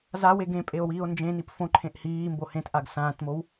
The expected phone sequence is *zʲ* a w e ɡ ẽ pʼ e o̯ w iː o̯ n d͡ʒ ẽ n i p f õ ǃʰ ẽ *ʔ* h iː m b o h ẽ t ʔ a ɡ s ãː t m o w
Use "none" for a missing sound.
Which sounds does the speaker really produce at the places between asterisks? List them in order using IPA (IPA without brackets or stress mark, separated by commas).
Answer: z, ʔ